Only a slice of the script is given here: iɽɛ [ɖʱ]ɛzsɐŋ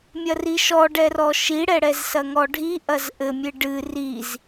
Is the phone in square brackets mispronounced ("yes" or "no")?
yes